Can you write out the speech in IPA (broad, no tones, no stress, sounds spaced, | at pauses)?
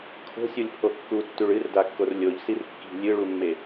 kʰ o̤ sʲ u lʲ pʰ o kː u tː ʉ ɭ ɨ r d a kː o r lʲ o ʎ s i r kː i̤ lʲ ɨ ɭ u mː e